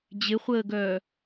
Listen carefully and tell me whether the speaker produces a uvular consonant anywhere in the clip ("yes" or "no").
yes